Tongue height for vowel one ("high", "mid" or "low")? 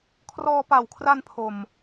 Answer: mid